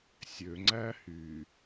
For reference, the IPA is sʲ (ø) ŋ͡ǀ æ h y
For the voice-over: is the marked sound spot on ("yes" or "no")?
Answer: yes